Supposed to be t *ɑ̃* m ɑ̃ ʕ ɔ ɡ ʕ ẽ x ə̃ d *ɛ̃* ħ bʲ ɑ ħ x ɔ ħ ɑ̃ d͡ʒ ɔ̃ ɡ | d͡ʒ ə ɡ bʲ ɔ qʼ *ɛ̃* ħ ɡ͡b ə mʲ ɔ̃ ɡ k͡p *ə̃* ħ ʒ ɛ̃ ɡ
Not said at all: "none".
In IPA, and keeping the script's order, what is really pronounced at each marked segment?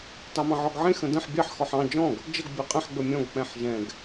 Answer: ɑ, ə̃, ɛ̃, ɛ̃

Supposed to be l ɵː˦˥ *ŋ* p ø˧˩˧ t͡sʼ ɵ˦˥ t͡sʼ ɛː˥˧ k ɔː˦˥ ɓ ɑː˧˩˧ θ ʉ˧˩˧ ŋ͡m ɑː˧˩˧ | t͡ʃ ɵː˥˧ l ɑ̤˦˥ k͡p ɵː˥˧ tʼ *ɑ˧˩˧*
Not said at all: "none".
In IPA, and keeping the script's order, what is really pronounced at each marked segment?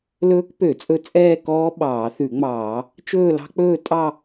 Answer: k, ɑ˥˧

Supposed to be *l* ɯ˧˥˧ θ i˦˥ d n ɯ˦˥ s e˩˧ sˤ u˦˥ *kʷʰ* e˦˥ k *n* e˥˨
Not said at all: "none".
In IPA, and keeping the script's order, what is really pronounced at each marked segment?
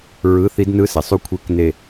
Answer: ɹ, kʷʰ, n

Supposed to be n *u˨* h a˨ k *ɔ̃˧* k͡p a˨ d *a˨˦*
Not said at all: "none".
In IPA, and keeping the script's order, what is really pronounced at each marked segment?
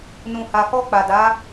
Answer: ũ˨, ɔ˧, a˨˦

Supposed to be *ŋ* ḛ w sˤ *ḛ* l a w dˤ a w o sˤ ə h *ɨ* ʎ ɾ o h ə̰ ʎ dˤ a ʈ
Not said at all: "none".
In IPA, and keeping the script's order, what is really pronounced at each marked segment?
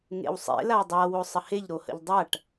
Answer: ŋ, ḛ, e

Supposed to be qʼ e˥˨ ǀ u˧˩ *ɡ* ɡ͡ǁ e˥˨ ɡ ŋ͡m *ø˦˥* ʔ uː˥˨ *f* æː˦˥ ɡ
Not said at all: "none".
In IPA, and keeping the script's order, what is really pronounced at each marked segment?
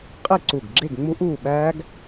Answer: ɡ, u˦˥, ɓ

